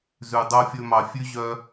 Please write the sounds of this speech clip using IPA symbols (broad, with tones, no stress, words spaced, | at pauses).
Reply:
zʉ˨ dˤo˧fʲɵ˧mɑ˨ fʲʉ˦ ʑœ˦